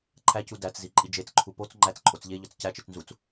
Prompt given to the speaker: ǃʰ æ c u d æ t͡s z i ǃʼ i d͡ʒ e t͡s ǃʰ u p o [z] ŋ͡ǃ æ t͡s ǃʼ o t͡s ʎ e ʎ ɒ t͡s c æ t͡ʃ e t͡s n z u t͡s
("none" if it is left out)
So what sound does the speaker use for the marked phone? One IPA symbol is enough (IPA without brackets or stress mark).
t͡s